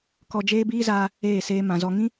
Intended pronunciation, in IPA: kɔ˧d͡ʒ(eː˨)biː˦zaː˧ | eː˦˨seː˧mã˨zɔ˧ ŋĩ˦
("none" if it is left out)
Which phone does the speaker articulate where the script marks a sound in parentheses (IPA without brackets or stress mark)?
eː˦